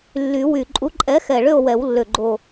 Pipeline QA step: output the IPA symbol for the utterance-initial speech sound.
lː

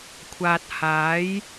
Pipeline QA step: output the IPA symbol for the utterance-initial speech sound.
kʷʰ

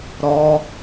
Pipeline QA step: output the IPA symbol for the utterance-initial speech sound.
ɾ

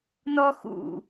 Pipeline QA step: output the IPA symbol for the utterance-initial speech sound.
n̪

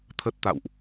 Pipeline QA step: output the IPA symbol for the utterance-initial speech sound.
t̪ʰ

